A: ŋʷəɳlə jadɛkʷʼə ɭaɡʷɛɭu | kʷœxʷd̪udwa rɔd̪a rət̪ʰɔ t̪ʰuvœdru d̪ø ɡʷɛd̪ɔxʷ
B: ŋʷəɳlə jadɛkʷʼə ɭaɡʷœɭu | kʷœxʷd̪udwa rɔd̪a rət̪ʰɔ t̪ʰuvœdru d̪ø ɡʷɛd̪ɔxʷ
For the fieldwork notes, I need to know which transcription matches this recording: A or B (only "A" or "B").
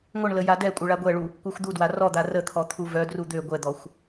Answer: A